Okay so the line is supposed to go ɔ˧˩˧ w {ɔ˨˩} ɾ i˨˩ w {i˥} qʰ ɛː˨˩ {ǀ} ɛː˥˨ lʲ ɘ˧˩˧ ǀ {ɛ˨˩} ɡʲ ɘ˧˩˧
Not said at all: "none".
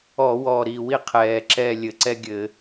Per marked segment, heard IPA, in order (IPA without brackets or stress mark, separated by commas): ɔ˨˩, i˥, ǁ, ɛ˥